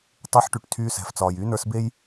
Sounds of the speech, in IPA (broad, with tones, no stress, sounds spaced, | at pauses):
tˤ ə˞˧ ħ ʈ y˨ ʈ tʰ yː˧ s ɛ̤˨ f t͡s ɒː˨ j yː˧ n ə˞˧ s b e˦ j